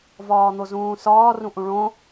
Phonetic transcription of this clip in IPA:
vɒːn̪ozũːsɒː rũʔũɭõ

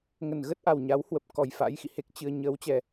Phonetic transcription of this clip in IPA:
ŋə˧˩nɣə˦˥t̚ʔa˨˩w ɲa˨˦whwə˨˩p̚ kɔ˨˩jfa̰˧˥jxḭ˧˨he˦˥k̚ t͡ɕɨ˧ə̯ ɲəː˨˦wt͡ɕɛ˨˩

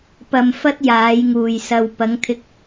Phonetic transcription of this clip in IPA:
pɐ˧mfɐ˥t̚ jaː˨˧jŋuː˨j sɐ˨wpɐ˨˧ŋ t̪ʰɪ˧k̚

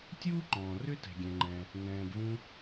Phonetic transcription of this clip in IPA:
tʲuː˥ǃɔ̃ː˩ rʏ˥tɛ̤˩ɡʲɛ̃˩ŋ͡ǃɛ̃˩ | nɛ̃ː˩bvũ˧

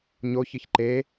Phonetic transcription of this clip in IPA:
ɲoçɨç ǃe

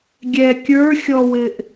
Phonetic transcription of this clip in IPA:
ɡʲɛ kʲə˞xʲɔwɪʔ

